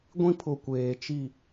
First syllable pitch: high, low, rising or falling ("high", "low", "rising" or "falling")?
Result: high